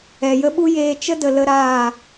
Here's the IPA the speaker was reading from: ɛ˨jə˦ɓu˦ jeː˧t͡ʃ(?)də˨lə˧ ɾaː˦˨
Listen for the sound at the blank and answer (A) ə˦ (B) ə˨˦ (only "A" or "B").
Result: A